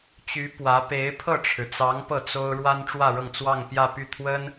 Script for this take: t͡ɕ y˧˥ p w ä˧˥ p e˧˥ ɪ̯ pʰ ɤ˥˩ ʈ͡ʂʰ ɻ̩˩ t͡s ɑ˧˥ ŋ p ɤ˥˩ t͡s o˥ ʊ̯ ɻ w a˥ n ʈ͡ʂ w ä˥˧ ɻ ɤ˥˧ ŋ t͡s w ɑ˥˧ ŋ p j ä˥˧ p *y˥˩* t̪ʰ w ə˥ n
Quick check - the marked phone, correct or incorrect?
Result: correct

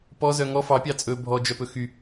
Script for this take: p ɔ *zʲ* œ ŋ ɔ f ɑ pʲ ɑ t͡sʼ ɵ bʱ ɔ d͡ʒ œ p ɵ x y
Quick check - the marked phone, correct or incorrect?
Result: incorrect: z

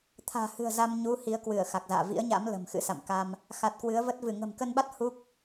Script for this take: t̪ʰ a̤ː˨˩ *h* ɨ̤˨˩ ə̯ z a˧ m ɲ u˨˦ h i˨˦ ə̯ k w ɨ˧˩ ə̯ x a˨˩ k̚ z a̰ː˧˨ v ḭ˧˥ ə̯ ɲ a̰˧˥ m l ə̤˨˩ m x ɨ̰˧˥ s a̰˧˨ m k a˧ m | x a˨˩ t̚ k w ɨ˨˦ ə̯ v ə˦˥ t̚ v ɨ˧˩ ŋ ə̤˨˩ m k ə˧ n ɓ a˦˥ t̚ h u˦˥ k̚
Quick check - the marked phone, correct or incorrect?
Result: correct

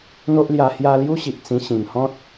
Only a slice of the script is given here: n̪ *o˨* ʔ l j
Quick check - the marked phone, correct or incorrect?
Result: incorrect: o˦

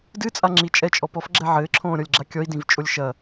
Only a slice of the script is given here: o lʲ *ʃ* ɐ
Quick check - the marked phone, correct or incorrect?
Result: correct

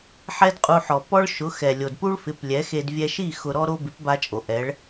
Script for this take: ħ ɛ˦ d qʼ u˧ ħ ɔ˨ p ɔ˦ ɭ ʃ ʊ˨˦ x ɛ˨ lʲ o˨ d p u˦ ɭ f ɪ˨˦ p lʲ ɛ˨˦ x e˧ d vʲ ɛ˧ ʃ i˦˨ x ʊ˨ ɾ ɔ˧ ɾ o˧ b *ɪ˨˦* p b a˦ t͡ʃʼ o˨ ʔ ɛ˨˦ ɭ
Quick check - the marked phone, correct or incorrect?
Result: correct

